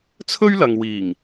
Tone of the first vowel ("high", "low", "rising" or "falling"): high